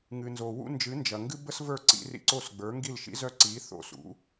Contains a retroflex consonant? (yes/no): no